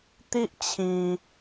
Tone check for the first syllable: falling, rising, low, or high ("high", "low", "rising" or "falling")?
high